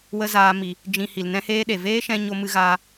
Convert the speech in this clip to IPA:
wə˦zaː˧ mi˨ | d͡ʒĩ˨ hi˨lnɛ̃˦heː˦ɗe˨ veː˦ʃɛ̃˧ ɲo˧mɨ˧ɣaː˧

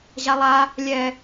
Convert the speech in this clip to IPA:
ʑalˠa | lʲɛ

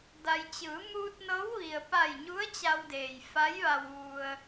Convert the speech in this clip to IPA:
da˩jt͡ɕɯː˩˧ muː˧t̚nɤː˧˥wʋi˩ə̯ pa˧˩jɲu˧˥ə̯ t͡ɕa˧wdeː˩jfa˧˥jʋa˧w ʋu˧ə̯

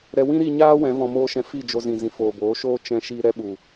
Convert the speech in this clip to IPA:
ɾɛ˧ wĩ˦ɾi˧ɲaː˦ wɛ̃˨˦vɔ̃˧moː˦ʃɛ̃˧ fi˦˨d͡ʒo˧zĩ˨zĩ˨ foː˨boː˨˦ʃoː˦ t͡ʃɛ̃˧ʃi˧ ɾɛ˦ɓu˨

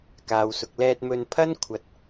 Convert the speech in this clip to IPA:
kaː˨wsʊ˨k̚lɛː˧t̚ mɵ˧n pʰɐ˥n kʷʰɐ˨t̚

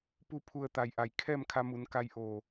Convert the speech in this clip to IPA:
pu˧pʰu˧˩ə̯ t̪a˩j ʔa˩j kʰɛː˥˨mkʰa˧mu˩˧n ka˧jʔoː˧˩

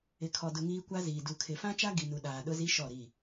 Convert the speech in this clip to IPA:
ɪ˨kʰɔ˨dʊ˨ ŋiː˦kʷa˦ziː˨ du˨kʰɪ˨fã˦t͡ʃa˦ ɡi˨nu˨ ɗaː˨ɗʊ˦zi˦ ʃɔ˦˨ɾi˦˨

